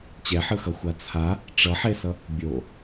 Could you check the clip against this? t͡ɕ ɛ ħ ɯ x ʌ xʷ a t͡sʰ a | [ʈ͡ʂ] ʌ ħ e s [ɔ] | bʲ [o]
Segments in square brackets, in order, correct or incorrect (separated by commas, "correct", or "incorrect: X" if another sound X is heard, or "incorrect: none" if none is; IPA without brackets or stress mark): correct, incorrect: ʌ, correct